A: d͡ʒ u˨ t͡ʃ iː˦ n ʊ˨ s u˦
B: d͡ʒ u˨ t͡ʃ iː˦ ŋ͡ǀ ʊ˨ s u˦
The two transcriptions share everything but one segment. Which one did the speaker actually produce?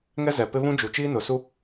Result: A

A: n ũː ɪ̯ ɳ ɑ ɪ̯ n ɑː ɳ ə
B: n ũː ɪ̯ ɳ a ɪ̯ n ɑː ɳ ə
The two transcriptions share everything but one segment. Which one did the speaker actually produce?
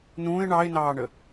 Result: A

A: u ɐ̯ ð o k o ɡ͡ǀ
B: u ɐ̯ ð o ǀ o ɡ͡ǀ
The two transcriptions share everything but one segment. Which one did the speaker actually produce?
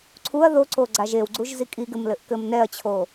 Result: B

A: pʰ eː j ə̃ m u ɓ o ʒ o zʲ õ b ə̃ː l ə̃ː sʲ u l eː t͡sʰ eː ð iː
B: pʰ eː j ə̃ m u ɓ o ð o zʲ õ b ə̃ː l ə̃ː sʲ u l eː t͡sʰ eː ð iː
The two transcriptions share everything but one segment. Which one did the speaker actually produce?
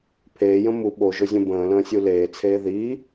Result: A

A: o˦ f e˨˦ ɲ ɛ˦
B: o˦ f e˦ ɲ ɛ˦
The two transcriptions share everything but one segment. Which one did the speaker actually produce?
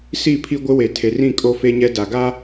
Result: B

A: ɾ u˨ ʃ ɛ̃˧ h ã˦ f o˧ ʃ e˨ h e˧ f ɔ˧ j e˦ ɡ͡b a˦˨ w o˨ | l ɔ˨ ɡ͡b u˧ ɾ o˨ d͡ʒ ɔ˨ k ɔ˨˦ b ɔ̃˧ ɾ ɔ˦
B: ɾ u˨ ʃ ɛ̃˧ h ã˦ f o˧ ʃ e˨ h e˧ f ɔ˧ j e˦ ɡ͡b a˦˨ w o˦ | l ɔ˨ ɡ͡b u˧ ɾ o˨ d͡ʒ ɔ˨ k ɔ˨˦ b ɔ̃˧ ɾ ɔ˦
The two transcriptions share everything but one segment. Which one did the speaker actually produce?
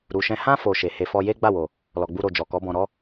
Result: A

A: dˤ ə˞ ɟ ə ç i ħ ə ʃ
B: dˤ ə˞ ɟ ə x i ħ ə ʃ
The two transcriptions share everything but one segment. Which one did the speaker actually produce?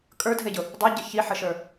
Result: A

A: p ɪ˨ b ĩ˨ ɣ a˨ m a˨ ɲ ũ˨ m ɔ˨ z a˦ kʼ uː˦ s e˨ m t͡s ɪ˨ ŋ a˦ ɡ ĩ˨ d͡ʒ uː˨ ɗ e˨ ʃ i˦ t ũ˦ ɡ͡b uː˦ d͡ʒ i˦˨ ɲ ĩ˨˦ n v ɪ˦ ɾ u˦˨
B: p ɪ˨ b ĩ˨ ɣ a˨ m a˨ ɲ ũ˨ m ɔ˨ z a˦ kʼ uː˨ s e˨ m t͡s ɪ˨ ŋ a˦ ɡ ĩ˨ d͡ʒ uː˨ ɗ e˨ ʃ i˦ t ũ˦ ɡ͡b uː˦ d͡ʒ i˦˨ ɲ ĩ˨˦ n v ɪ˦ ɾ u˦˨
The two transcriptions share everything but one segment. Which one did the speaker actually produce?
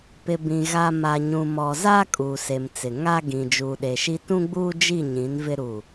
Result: B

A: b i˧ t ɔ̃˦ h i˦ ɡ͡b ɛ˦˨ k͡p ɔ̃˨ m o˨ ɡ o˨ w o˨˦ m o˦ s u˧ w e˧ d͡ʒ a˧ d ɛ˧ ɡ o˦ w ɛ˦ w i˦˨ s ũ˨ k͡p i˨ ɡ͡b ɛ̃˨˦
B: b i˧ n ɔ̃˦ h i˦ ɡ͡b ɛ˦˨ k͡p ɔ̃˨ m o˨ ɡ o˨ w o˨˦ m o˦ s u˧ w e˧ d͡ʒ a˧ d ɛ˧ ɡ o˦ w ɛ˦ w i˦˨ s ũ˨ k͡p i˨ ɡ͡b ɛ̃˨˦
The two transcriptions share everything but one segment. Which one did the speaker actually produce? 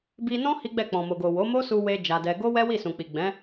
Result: B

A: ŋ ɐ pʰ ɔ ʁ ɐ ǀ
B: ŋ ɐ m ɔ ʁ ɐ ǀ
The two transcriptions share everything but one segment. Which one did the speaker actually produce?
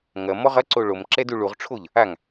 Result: B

